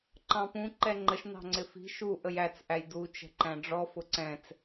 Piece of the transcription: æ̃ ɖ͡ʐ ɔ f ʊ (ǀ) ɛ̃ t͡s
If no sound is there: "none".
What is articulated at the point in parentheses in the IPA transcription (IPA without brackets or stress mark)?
ǀ